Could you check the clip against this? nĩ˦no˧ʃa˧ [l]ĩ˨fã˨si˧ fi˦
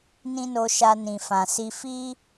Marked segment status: incorrect: n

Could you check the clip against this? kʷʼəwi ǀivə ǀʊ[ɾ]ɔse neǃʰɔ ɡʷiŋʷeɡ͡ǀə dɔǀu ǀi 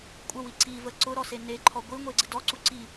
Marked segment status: correct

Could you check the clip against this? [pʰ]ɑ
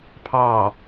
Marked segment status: correct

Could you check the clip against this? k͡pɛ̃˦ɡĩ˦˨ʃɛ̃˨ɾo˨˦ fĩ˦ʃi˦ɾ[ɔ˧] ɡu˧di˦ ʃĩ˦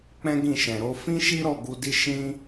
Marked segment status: incorrect: ɔ˦˨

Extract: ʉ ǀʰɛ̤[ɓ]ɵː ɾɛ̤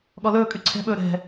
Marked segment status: correct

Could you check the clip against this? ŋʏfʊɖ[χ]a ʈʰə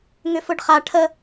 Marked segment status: correct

